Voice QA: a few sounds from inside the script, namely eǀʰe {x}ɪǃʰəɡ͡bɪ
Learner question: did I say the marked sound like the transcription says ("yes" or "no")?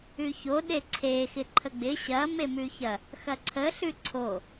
yes